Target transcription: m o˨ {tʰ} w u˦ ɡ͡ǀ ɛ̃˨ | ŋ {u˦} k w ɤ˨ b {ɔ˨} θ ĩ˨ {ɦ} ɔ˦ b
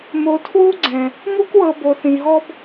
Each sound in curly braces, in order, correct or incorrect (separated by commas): correct, correct, incorrect, correct